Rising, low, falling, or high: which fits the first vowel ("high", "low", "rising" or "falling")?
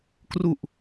low